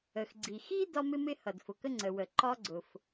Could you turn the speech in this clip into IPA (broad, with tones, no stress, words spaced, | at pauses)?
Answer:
ə˩xɡ͡ǀi˩ xi˥ dɒ˥mɪ˥mɪ˥ hʌ˩dfʊ˩kə˥ ŋ͡ǀə˩wə˩ ǃɒ˥ɡ͡ǀʊ˩f